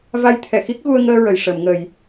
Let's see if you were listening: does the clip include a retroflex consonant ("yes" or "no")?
yes